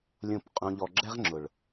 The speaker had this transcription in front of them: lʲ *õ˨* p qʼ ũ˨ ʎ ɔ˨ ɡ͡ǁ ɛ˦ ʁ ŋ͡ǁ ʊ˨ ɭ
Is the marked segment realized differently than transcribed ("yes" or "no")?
no